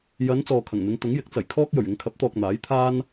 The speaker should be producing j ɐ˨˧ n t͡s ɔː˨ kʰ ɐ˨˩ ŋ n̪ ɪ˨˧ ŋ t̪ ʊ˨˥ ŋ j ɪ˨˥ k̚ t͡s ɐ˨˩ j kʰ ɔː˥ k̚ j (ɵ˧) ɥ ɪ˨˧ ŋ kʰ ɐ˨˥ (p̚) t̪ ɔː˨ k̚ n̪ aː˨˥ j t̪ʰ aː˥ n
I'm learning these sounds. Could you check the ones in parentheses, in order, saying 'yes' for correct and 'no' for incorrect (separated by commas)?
no, yes